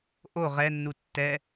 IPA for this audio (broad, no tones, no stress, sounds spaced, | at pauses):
ʔ o ʁ ɛ nː u tː ɛ